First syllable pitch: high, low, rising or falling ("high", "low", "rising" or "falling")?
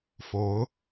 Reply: rising